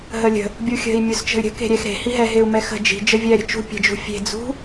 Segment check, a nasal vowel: absent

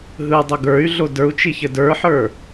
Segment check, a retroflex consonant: absent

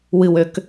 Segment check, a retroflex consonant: absent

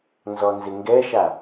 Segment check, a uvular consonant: absent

